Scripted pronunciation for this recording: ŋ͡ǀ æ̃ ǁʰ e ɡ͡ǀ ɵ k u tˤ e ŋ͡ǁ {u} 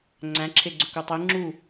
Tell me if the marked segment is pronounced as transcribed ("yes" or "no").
yes